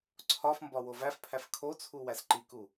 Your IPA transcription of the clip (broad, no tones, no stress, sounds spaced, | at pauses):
ǀʰ ɒ f m b ɒ w o v æ f pʰ æ f kʰ o t͡sʰ u w æ s ǃ i k u